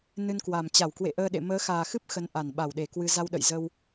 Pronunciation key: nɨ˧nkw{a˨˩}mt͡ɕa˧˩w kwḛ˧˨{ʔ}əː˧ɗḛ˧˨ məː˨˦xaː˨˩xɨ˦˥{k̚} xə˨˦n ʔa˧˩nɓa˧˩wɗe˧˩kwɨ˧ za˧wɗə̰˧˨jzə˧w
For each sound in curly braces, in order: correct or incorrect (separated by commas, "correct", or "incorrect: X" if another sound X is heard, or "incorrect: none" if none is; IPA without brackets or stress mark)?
correct, correct, incorrect: p̚